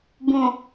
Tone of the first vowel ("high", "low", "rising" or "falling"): low